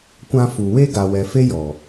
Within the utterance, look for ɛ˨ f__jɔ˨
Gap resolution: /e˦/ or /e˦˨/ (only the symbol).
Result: e˦